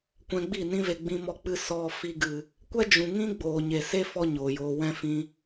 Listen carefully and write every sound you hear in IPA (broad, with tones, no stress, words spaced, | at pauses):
kʷɛ̃˧ɡ͡bi˦˨nĩ˦ve˧ ɡ͡bĩ˧mɔ˧k͡pɨ˧ sɔ˧ fi˧ɡɨ˨ | kʷɛ˦d͡ʒũ˨ŋĩ˦ ɡ͡boː˨ɲe˨se˦ fɔ˦ ɲoː˨joː˧ wɛ̃˦ fĩ˧